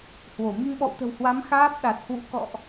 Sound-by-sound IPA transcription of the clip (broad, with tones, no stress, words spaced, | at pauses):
hwo˧˩ mi˧ŋɓɔ̰˧˨wt̪ə̤˨˩whwa˨˦m xaː˦˥p̚ ɗa˨˩t̚hwṵ˧˥ kɔ̰˧˨ʔ